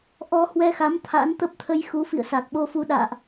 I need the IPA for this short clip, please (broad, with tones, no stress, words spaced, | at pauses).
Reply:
ʔɔ˧hwɛ˧xa˨˦m t̪ʰa̰˧˥nt̪ə˦˥p̚t̪ʰə˧jxu˨˦ fḭ˧˨ə̯sa˨˩k̚ɓo˧fu˧ ɗa̰ː˧˨ʔ